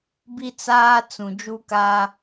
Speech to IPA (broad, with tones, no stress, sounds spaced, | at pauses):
b i˦ t͡s aː˦ t͡s ũ˨ d͡ʒ u˦ k aː˦